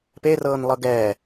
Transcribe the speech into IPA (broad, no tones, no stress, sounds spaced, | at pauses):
p e r ɤː n lˠ ɤ ɡ ɛː